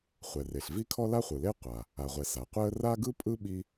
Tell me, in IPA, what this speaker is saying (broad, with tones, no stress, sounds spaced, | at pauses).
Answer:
χʷ ɛ˩ r e˩ ɬ v i˥ kʰ ɔ˥ l a˥ χʷ ɯ˩ l e˥ qʷ a˩ | a˩ ʁʷ ɛ˩ s a˩ qʷ ɛ˥ ə̯ r a˥ ɡ ɯ˥ pʼ ɯ˥ ɓ i˥